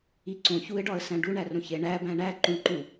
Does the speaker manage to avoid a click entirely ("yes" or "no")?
no